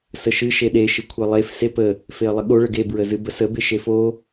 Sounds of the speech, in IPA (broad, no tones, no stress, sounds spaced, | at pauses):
s ə ʃ ɨ ʃ e ɗ e ʃ ɨ kʷʰ e lˠ e f s e p ə | f e ə̯ lˠ ə ɠ o ɭ ə ɡ e b ɹ ə z ɨ b ə s ə b e ʃ e f o